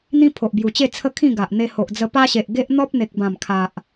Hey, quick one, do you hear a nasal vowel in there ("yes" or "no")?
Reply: yes